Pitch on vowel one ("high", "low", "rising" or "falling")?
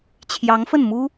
rising